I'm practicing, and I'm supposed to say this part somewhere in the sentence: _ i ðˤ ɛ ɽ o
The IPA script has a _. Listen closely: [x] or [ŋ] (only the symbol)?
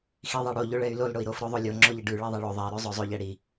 x